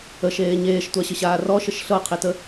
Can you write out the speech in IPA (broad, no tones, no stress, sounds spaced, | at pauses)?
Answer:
ə ʃ eː ɲ eː ʃ tʷ a ɕ ə ɕ aː r ɔ ʃ ə ʃ ɬ ɤ qʰ i t ə